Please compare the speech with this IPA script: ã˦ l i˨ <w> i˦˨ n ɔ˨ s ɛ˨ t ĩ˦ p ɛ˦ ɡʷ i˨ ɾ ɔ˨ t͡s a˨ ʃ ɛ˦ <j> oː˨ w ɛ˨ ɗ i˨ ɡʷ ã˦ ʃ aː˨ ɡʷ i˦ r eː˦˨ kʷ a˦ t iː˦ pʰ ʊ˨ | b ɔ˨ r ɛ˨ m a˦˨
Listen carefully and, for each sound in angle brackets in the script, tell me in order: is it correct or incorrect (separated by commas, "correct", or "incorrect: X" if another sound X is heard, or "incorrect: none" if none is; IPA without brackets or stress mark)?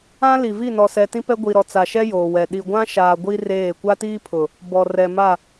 incorrect: v, correct